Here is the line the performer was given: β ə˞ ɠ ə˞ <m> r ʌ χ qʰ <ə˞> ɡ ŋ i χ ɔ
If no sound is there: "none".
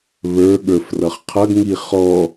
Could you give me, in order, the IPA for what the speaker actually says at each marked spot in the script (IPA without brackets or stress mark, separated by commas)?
f, ʌ